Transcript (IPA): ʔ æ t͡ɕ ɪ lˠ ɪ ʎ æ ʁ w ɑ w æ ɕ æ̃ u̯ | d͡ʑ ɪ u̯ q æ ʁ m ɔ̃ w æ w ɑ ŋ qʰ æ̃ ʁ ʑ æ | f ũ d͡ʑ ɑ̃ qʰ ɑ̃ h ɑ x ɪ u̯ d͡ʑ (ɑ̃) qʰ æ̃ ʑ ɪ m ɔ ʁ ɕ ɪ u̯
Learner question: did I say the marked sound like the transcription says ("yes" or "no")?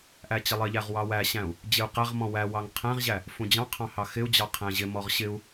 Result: no